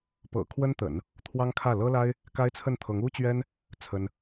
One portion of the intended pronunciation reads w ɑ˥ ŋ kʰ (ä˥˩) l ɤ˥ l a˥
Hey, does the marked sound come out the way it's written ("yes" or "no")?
yes